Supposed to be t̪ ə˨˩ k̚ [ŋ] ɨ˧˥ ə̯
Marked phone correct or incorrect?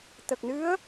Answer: incorrect